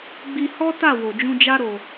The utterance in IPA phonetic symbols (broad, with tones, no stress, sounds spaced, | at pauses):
ɡ͡b i˧ h ɔ˦ t a˦˨ w o˨ d͡ʒ ũ˧ d͡ʒ a˦ ɾ o˧